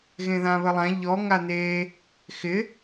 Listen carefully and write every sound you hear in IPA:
ɣ ẽ ð ã β ə lˠ ã ʎ ɔ ŋ a n̪ e | x ɪ

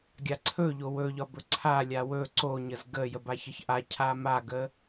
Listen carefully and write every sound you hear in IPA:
ɡʲ a ǀʰ ɵ ʎ o w ɵ ʎ ɒ b ɵ ǀʰ a lʲ a w ɵ ǀ o ɲ ə z ɡ ə j ə b a ç ə ç ʔ a cʰ a m a ɡ ə

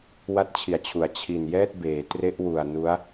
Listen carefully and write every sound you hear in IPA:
w a˦˥ t̚ t͡ɕʰ i˨˩ a̯ t͡ɕʰ u˩˦ a̯ t͡ɕʰ i˨˩ n j ɛː˥˩ t̚ b eː˩˦ t r e˦˥ ʔ w u˨˩ a̯ n u˦˥ a̯

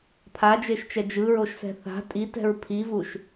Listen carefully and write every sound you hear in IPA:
pʰ a d͡ʒ e ʃ t͡ʃ ɛ d͡ʒ ɯ ɹ o ʃ s ɛ̤ θ a̤ tʼ i t ɛ̤ ɹ pʰ i v u ʃ

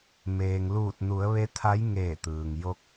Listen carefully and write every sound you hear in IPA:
m eː˩ ŋ l uː˧˩ t̚ n u˩˧ ə̯ ʋ e˧˥ t̪ʰ a˧˥ j ŋ eː˧˩ t̪ ɯː˩ ŋ j o˧ k̚

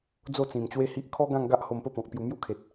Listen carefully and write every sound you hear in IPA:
d͡z o˥˧ t͡s ĩ˨˩ m t͡ɕ w e˦ h i˦ ʔ kʰ ɔ˦ ɡ ã˥˧ ŋ ɡ a˦ ʔ h o˧ m p ə˦ p ɔ̃˨ k̚ p j u˧ m j u˦ kʰ e˨ t̚

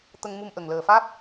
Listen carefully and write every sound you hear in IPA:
t̪ ə˧ ŋ m u˧ m ʔ ə˨˩ ŋ l əː˨˩ f aː˦˥ p̚

